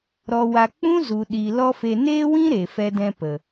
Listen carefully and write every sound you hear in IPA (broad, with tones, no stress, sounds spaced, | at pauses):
ɾ ɔ˨ w a˨ k͡p ũ˦ z u˨ ɗ i˨ l ɔ˦ f e˧ n eː˦ w ĩ˦ ɾ e˨ f ɛ˧ d ɛ̃˧ p ə˨